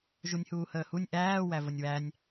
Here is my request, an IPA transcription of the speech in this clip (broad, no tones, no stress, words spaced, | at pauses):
ʒunʲhuːhəːhunʲ ʔæː wævənʲwænʲ